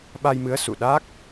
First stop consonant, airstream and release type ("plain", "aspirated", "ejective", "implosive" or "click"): implosive